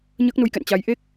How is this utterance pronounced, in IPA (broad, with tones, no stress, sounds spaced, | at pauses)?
ɲ əː˦˥ k̚ n u˧ j k ɛ̰˧˨ n t͡ɕ a˨˦ j ʔ e˦˥ k̚